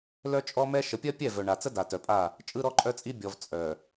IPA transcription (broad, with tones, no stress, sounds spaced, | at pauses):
l œ˦ t͡ʃʼ ɔ˦ m ɛ˦ ʃ ə˨ pʲ ɜ˦ pʲ ɛ˦˨ v œ˨ ɳ a˨ t͡s ə˦ d a˨ t œ˨ pʼ a˦˨ | t͡ʃʼ ɯ˦ ɾ ɔ˦ ǃʼ œ˦ t͡sʼ i˦ bʲ ɔ˨ v t͡sʼ œ˨